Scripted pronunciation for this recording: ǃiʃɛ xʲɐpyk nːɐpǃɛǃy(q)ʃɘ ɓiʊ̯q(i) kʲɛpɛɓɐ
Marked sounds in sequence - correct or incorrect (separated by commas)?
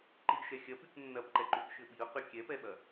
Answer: incorrect, incorrect